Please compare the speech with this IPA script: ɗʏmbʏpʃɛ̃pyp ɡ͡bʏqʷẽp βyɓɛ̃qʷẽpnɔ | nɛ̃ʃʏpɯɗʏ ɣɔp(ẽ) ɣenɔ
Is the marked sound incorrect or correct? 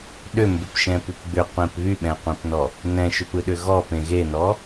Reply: correct